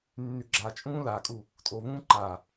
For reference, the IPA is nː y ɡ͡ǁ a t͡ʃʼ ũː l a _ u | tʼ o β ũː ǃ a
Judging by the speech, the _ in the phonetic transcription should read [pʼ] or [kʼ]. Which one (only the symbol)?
kʼ